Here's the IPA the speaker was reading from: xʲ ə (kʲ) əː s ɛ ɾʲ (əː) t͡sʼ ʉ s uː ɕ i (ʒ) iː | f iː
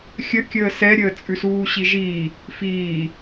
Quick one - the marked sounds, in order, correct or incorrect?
correct, correct, correct

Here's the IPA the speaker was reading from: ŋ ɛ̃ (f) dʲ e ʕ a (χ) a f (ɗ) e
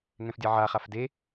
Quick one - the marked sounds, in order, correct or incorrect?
correct, correct, incorrect

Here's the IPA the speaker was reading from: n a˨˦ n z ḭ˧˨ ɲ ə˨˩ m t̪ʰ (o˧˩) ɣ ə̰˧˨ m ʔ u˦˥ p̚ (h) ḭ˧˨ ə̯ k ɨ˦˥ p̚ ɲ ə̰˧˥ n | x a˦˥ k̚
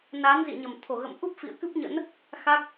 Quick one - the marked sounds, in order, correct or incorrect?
correct, incorrect

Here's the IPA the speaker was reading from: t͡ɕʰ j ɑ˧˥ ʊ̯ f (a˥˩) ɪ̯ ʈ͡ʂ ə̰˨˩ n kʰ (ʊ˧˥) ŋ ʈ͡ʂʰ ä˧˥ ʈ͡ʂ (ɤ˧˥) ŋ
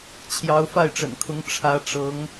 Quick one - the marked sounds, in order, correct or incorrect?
correct, correct, correct

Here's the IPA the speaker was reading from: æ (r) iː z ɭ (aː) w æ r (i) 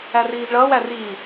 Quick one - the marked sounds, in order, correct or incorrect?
correct, incorrect, incorrect

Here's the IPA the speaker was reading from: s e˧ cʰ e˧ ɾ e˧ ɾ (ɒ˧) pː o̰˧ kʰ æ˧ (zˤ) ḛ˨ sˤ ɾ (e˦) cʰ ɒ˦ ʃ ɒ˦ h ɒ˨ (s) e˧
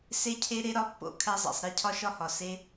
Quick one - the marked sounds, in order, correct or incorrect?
correct, correct, correct, correct

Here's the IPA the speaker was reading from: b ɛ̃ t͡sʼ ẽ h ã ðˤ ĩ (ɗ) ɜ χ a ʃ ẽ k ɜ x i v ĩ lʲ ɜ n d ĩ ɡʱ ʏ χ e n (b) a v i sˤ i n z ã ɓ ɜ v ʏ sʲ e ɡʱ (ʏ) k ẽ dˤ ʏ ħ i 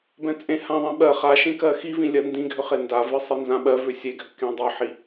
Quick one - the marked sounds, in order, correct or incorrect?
incorrect, incorrect, correct

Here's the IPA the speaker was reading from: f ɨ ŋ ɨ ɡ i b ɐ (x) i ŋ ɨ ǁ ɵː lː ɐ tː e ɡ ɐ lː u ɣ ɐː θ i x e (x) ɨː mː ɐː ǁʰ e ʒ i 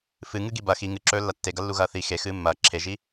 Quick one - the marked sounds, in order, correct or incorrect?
correct, correct

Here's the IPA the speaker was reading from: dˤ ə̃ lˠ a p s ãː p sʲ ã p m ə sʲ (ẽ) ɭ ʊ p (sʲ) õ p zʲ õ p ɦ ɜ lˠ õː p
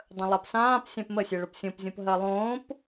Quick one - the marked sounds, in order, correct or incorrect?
incorrect, correct

